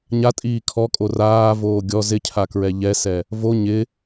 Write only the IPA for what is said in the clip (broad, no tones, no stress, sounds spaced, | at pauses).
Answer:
ɲ a tʼ iː kʰ ɔ kʼ o r aː v oː ɡʲ ɔ z ɪ cʰ a k ɹ ɛ ʎ ɛ s ɛ | v o ɲ ɪ